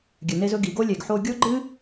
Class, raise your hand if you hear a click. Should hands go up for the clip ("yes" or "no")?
yes